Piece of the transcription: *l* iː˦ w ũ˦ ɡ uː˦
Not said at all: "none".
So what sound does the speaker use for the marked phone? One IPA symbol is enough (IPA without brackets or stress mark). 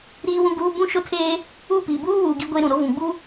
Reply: ɾ